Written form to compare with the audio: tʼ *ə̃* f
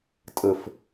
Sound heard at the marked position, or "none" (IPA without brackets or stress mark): ə